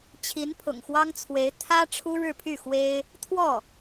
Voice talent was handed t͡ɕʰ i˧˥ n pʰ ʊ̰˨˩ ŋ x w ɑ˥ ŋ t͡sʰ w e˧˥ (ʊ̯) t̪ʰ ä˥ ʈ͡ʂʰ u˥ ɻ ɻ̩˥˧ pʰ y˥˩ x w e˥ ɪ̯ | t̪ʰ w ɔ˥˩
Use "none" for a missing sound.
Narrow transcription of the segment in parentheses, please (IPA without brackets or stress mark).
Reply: ɪ̯